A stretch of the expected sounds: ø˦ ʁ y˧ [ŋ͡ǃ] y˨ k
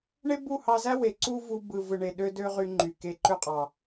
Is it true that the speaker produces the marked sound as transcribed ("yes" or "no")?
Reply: yes